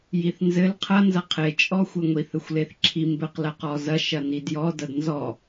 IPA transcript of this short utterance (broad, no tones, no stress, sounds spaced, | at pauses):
j i θ n z ɘ l qʰ ɐ n z ɐ qʰ e t͡ʃʼ ɔ xʷ ɘ ŋʷ i θ ɘ xʷ l e θ ǁʰ i m b ɘ q l ɐ q ɔ z ɐ ʃ ɐ n i d j ɔ d ɐ d n z ɔ